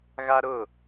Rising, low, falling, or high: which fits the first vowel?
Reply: high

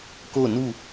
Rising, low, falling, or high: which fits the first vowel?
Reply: falling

